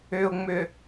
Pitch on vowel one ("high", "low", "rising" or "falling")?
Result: low